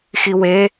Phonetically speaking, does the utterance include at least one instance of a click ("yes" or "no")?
no